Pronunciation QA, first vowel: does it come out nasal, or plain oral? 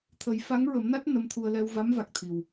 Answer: oral